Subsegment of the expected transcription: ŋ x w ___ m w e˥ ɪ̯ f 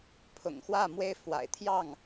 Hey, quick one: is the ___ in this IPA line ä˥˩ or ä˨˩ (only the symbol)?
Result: ä˥˩